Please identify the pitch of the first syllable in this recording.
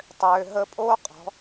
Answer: low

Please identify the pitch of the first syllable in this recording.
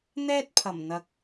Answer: high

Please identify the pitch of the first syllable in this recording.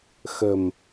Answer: low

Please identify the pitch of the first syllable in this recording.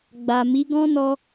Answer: low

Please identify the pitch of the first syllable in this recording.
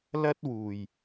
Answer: high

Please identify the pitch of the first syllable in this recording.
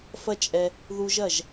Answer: high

